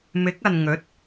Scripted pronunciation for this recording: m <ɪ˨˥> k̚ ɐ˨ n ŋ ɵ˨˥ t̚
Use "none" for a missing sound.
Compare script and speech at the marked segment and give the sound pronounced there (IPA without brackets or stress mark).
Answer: ɪ˨˥